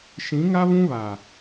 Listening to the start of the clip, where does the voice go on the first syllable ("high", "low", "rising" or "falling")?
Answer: rising